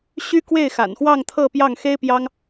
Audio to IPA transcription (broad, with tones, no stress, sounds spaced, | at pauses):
ɕ y˥ k w e˥˩ ɪ̯ x a̰˨˩ n x w ɑ˥˧ ŋ t̪ʰ ɤ˥˧ p j ɑ˥˩ ŋ x e˥ ɪ̯ p j ɑ˥ ŋ